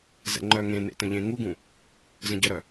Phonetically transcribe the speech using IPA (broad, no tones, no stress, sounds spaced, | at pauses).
z ɛ̰ ŋ͡ǃ œ ŋ ẽ n ḛ t ə̃ ʎ ẽ ŋ u ɡ ũ | z ə̃ ɟ ə ɾ œ